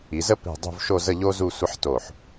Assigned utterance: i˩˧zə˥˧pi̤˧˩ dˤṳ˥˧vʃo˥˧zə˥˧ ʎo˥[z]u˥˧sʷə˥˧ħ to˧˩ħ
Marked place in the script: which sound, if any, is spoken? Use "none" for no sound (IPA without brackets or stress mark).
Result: z